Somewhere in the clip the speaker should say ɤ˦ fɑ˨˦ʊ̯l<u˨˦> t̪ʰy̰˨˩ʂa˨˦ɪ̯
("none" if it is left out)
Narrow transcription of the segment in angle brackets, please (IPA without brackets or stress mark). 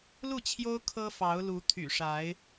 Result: u˨˦